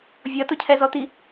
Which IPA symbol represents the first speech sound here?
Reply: vʲ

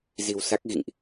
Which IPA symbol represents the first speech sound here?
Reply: z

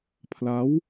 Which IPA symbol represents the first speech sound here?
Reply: pʰ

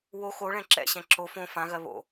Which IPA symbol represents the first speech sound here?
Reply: w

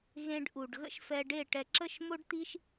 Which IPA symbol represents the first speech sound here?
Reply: ɣ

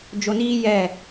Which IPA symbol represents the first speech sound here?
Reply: d͡ʒ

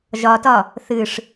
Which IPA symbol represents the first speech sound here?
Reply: ʒ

